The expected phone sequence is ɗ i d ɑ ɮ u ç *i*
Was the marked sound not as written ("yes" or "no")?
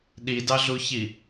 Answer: no